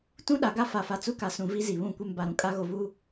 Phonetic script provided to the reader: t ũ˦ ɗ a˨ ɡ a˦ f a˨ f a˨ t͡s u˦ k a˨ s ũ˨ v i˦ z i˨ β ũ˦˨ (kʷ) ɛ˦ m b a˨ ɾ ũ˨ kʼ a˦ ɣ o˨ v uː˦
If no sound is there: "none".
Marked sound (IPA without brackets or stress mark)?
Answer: kʷ